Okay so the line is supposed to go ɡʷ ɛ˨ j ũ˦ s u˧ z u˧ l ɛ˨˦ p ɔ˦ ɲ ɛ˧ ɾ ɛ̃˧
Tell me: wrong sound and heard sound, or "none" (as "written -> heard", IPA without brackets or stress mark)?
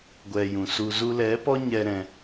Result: ũ˦ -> ũ˨